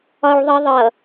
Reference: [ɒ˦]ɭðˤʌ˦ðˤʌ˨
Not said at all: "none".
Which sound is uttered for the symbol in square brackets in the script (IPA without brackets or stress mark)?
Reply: ɒ˦